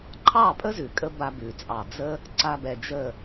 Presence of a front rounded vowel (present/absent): absent